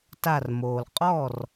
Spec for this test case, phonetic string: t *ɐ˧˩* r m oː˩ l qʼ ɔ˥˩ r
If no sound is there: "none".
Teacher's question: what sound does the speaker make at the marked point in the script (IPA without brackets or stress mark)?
a˧˩